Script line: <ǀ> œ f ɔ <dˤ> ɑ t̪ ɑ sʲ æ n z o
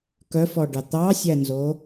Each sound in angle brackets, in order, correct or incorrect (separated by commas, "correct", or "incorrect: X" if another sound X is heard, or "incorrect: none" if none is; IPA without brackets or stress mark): incorrect: k, incorrect: ɖ